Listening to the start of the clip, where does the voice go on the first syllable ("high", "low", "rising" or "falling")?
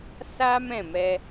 high